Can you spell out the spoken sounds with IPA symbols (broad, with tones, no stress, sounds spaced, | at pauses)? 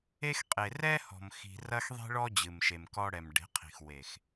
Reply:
e˦ x qʼ e˨ r ɛ˦ h ɔ̤˨ m x i̤˨ r ɐ˦ x ðˤ i̤˦ ɭ ɔ˦ d͡ʑ ɨ˨ m ʃ e˨ m k ɔ˦ ɽ ɛ˨ m ɖ e̤˨˦ qʰ i̤˨ x w e˨ x